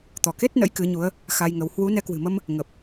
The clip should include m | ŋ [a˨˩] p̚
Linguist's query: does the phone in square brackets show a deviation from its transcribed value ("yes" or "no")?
yes